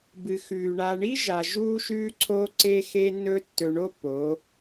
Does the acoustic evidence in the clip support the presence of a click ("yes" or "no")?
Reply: yes